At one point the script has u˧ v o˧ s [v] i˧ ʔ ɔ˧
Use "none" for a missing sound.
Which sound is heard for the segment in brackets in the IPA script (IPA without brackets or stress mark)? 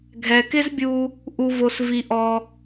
v